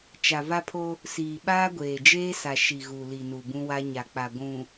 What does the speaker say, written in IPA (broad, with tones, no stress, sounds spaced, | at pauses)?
t͡ʃ a˨ v a˦ pʰ o˦ | s iː˨ ɓ aː˦ ɡʷ eː˨ d͡ʒ eː˦ s a˨ ʃ i˨ ɣ u˨ l i˨ n u˨ b ũ˦ w a˦ ɲ a˨ k͡p a˨ ɡʷ ũ˨